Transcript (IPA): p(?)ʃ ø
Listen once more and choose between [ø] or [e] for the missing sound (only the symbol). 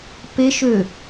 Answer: e